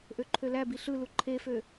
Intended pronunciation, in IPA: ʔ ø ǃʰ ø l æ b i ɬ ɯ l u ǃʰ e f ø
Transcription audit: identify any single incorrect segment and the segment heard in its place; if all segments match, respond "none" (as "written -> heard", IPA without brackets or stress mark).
none